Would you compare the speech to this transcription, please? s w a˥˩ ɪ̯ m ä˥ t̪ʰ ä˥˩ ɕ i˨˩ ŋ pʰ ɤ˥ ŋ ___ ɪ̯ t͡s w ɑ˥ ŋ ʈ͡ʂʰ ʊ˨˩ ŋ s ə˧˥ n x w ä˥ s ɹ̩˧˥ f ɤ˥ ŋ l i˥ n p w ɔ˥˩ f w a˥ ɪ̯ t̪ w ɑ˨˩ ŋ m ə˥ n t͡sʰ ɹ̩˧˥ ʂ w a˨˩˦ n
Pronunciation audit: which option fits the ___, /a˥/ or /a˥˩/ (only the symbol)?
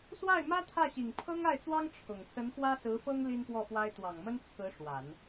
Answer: a˥˩